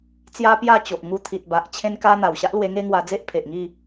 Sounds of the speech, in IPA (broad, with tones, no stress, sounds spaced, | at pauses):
t͡s j a˦ p j a˥˧ t͡ɕ o˨ ʔ ŋ u˧ t̪ʰ i˨ t̚ b a˨ ʔ t͡ɕʰ ẽ˧ n k a˧ n̪ a˨˩ w ɕ a˦ ʔ l w e˧ ŋ e˦ ŋ w a˧ d͡z e˦ ʔ pʰ e˨ ʔ ŋ i˥˧